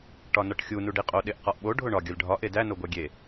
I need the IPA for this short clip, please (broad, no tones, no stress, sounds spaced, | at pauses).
ʈ ɒ n ɒ ʈ xʲ u n u ɖ i qʼ o ɗ e ʔ q ɒ ʔ ɓ o ɖʱ o ɳ ɒ ɡʲ ɒ lʲ ɖʱ ɒ ʔ e d æ n o ɡʷ æ ɡʲ e